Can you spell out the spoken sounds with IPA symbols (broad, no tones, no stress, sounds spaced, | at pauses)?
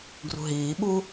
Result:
ɡ r ṳ ɦ iː ɓ u